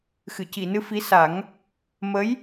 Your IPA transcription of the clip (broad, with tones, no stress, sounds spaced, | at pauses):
x ɨ˨˩˨ c i˨˩˨ n ɨ˧ f i˧˥ s a˨˩˦ ŋ | m ə˧˥ j